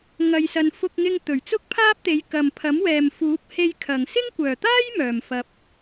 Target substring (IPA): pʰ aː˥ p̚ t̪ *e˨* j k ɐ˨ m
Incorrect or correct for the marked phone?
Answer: incorrect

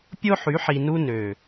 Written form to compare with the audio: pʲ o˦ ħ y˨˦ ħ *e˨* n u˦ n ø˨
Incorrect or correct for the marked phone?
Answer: incorrect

